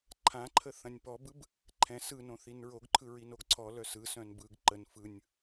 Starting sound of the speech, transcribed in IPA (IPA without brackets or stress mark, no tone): ǃʰ